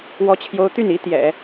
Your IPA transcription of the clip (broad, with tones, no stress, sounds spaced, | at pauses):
w ɔ˥ t͡ɕʰ j o˥ ʊ̯ t̪ y˥˩ n i˧˥ t̪ j ɛ̰˨˩˦